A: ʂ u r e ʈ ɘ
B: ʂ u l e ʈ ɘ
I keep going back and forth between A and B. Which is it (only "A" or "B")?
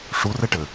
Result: A